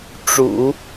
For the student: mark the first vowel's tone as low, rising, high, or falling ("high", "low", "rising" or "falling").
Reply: low